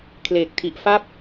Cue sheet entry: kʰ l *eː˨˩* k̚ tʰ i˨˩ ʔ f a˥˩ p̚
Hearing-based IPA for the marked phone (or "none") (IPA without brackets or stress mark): eː˨˩